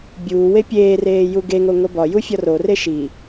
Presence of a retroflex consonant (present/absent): absent